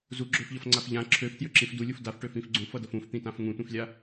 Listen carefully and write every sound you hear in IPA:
z u ɡ͡ǁ ø f ʎ ʌ f ŋ͡ǀ a f ʎ ã ǁʰ ø f t j ø ǁ ĩ f d u lʲ u f d a f ʈ ø f ĩ f ɡ͡ǀ ũ f ʌ d ʌ f ũ f t̪ ĩ t ã f ŋ ũ tʷ ĩ f lʲ a

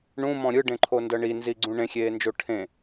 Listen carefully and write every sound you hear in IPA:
ɳ ũ m ɔ̃ ɾʲ ɯ ɖ ẽ ǃʰ o n d ɤ ɳ i n z i ɡ͡ǀ ũ ɳ ẽ xʲ eː n d͡ʒ o ʈʰ ẽ

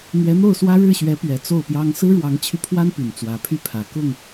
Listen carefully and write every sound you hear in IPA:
n̪ ɥ ɛ˧˥ n̪ o˥˩ ʊ̯ s w ä˥ ɻ ɻ̩˥˩ ɕ ɥ ɛ˧˥ p ɥ ɛ˨˩ t͡s o˥˩ ʊ̯ p j ɑ˥ ŋ s ɹ̩˥ ɻ w ɑ˧˥ ŋ t͡ɕʰ y˧ pʰ w a˥ n p y˨˩ n t͡s w ä˧˥ pʰ y˥ pʰ ä˨˩ k ʊ˥˩ ŋ

